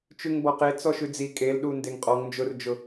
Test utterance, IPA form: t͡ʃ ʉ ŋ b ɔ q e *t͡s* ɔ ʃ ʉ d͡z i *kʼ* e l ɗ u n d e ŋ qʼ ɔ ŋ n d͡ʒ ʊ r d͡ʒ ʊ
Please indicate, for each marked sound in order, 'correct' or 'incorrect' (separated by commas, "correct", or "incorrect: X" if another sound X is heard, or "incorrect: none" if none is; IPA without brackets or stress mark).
correct, correct